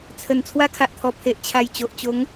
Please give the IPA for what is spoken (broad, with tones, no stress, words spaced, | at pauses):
t͡sʰə˨˩n t͡sʰwa˦kʰa˨ʔt̪ʰɔ˨˩ pʰe˨ʔt͡ɕʰa˨˩j t͡ɕo˨ʔt͡ɕo˨˦ŋ